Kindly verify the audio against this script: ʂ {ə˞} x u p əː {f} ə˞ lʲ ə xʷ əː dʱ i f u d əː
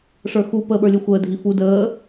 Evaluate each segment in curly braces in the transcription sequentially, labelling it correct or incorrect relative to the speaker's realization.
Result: correct, incorrect

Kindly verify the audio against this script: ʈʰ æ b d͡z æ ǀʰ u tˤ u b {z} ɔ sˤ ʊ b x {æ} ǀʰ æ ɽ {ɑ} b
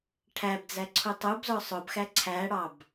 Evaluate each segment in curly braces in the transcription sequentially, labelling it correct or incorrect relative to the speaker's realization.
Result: correct, correct, correct

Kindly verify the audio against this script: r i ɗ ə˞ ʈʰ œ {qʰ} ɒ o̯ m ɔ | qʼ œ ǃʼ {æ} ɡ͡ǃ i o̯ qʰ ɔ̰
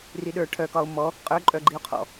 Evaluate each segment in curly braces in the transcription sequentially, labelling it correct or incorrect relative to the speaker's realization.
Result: incorrect, incorrect

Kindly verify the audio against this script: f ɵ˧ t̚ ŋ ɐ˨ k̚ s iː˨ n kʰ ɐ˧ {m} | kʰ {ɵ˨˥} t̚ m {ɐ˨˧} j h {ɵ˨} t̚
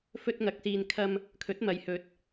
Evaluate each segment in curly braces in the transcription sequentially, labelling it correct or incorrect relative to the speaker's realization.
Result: correct, correct, correct, correct

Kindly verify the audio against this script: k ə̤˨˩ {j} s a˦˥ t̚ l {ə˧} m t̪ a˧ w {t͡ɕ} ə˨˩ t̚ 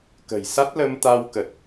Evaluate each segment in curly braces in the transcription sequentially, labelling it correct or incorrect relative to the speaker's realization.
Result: correct, correct, incorrect

